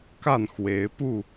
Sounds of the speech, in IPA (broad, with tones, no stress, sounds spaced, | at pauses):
k a˥˨ n x w e˨˦ ɪ̯ p u˥˨